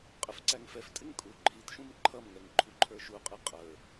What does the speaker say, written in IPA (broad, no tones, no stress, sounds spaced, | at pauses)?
qʼ ɪ f ǀ æ ŋ f ɛ f tʼ ɪ ŋ kʼ u ǃʰ i t ʃ ũ m ǃʰ ʌ m ŋ ɛ ŋ ǃʰ u ǃʰ ə˞ ʃ u qʼ i qʼ ə˞